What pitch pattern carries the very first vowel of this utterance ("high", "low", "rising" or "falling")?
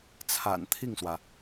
low